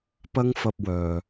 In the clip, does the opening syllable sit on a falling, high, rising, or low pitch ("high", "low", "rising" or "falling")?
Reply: high